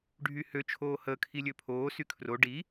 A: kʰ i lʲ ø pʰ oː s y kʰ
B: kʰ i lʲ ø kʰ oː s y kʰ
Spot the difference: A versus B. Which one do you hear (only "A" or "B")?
A